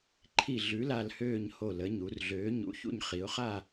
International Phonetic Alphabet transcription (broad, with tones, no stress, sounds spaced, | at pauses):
ǃʰ i˦˨ ɮ ʉ˨˥ l a˦˨ l h øː˦˨ ɲ h o˦˨ l ə˨˥ ɲ u˩˧ r ɮ øː˨˥ ɲ ṵ˨˥ ç ṵ˦˨ ɲ χ i˩˧ ʊ̯ χ a˦˨